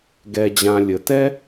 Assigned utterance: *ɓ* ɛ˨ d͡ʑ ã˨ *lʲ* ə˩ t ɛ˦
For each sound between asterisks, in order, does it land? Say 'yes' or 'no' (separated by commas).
no, yes